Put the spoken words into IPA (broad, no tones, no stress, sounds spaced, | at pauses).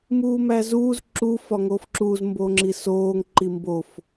m uː m æ z uː z ǁ u f ɒ ŋ oː f ǁ uː z m b oː ŋ͡ǁ i s oː ŋ ǃ i m b o f